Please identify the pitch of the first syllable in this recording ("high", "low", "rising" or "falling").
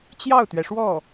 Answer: falling